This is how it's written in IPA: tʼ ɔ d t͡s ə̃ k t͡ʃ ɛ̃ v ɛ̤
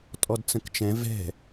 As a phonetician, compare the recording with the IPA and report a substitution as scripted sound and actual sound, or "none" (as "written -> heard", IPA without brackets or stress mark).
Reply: none